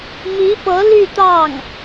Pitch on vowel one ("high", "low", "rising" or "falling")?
rising